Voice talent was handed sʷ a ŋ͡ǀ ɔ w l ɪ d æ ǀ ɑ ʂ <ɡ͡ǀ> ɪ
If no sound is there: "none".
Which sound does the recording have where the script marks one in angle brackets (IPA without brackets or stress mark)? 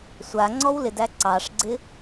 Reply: ɡ͡ǀ